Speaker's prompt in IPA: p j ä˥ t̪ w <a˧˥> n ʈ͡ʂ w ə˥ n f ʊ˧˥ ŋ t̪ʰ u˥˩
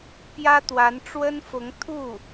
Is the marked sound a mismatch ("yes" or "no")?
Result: no